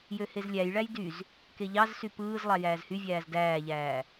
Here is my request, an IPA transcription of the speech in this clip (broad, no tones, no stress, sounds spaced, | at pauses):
j ø h e z lʲ æ j ɭ æ j d y z | k e ʎ ɑ z s y p ɯː z lˠ ɑ j æː z h y vʲ æː z d æː ʎ æː